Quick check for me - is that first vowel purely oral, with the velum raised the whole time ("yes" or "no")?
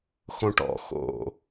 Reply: no